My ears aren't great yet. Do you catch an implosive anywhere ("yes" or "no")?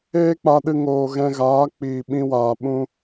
yes